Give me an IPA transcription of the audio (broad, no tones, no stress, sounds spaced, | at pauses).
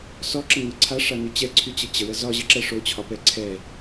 s ɔ ǁ ə ŋ ɤ ǀʰ a ʂ a n y t͡ɕ ɛ ǀʰ y t͡ɕ ə t͡ɕ ə w ə z ɒ ʑ ə ǁ ɛ ʂ o t͡ɕʰ ɒ p ɛ ǀʰ ɛ